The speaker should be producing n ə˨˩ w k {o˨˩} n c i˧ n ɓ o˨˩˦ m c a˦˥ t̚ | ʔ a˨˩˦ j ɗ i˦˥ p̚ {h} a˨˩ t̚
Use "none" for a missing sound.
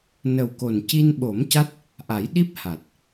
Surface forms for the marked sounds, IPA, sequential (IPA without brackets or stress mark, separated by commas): o˨˩, h